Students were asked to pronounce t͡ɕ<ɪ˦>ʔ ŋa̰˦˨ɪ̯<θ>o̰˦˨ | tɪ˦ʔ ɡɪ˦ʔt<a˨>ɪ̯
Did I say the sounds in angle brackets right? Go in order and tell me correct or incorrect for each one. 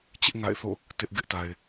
correct, correct, correct

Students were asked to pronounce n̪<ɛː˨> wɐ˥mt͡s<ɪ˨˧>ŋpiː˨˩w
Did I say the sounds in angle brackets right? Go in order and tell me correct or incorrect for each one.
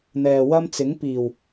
correct, incorrect: ɪ˨˥

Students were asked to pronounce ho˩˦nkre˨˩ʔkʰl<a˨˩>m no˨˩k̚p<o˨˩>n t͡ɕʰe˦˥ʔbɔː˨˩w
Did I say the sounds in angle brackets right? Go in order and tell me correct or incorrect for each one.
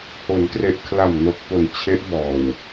correct, correct

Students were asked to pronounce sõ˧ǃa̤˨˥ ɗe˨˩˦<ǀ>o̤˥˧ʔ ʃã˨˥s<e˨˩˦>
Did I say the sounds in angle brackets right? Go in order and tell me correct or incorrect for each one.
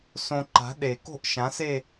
incorrect: k, incorrect: e˥˧

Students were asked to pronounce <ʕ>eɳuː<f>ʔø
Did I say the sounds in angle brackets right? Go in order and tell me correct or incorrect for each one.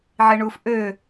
correct, correct

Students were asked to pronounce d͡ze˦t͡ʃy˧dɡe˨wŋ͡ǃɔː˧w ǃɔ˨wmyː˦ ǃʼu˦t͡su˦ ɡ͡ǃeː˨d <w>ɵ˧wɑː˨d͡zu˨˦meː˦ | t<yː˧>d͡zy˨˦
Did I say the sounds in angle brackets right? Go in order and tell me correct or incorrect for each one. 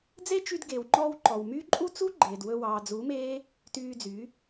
correct, correct

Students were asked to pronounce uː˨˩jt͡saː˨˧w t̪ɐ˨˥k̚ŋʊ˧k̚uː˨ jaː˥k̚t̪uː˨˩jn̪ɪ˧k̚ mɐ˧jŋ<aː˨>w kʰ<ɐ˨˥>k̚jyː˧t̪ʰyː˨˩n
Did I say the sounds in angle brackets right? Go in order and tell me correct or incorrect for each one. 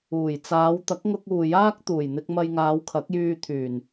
incorrect: aː˨˧, correct

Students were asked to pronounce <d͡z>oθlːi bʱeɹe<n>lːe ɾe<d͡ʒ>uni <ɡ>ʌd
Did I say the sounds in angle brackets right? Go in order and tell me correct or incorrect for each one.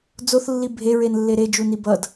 correct, correct, correct, incorrect: b

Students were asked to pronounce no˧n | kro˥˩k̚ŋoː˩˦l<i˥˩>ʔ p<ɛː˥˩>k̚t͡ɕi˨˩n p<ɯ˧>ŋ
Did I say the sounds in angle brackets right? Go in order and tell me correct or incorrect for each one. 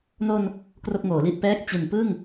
correct, incorrect: ɛː˦˥, incorrect: ɯ˥˩

